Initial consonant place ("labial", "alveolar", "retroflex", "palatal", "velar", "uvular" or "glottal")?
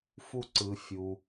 labial